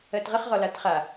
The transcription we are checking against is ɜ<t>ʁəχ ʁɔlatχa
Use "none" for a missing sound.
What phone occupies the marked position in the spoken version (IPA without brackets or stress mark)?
t